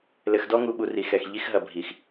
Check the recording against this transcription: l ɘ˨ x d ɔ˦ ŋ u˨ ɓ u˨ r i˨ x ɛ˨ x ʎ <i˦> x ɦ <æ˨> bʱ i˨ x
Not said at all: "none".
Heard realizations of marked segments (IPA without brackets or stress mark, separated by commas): i˦, ɐ˨